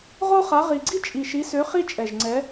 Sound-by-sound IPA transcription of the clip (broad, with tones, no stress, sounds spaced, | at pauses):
ʁ o˦ χ a˨˦ ʁ i˨˩ ɡ͡ǀ i˦ t͡ʃʼ i˨˩ ʃ i˨˦ s ø˨˦ χ i˦ t͡ʃʼ ɛ˨˩ ʒ ŋ͡ǀ ɛ˨˦